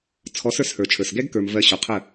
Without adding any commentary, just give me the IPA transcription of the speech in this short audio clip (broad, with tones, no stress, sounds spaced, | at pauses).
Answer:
t͡sʰ ɔ˨˦ s ə˞˧ s h ə˞˨ t͡ʃʰ ə˞˨ s ɡ ɛ˦ ɡ k ə˞˨ m v ɜ˧ ɕ ɔ˨ qʰ ə˦˨